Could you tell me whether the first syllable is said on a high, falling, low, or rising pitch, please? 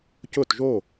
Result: falling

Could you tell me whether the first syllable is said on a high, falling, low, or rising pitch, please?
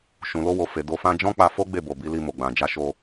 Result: low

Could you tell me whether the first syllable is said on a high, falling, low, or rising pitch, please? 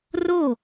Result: falling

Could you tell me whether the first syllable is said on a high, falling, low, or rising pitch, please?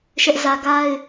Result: high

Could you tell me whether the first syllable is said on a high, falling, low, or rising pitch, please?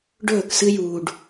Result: falling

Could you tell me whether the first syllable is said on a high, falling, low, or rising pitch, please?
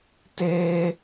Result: high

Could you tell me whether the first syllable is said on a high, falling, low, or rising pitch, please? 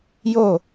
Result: falling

